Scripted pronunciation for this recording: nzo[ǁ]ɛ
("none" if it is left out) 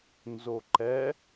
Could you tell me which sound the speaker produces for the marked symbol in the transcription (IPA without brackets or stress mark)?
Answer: ǃ